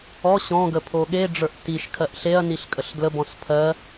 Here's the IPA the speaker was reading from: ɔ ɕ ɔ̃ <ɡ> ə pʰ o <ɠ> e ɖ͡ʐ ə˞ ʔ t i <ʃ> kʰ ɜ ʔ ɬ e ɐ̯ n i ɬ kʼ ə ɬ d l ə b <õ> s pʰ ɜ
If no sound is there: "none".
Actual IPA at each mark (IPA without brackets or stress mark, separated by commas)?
ɡ, ɠ, ʃ, ɔ̃